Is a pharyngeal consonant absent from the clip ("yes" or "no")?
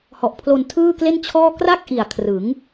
yes